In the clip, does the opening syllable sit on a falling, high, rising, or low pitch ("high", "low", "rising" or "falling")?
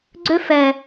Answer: high